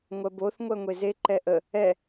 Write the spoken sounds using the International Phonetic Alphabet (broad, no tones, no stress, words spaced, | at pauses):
ŋʷɜboθ ŋʷɜŋʷeze ǃɛʔə | ɛ